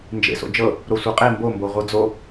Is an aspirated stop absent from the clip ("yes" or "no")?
yes